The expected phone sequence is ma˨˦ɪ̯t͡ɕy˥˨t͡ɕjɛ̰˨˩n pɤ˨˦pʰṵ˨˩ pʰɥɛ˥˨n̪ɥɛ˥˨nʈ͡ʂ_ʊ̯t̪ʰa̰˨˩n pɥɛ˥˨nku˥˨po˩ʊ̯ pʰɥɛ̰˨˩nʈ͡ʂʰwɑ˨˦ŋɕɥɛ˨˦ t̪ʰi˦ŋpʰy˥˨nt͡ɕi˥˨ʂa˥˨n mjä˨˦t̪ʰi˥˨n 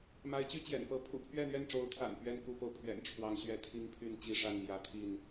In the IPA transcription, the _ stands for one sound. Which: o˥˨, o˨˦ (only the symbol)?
o˨˦